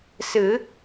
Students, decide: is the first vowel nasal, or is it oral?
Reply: oral